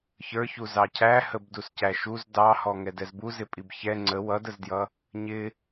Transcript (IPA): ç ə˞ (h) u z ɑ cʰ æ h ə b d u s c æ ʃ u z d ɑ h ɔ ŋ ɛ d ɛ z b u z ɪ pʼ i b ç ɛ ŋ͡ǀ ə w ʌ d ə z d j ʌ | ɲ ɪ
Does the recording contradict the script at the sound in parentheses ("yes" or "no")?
yes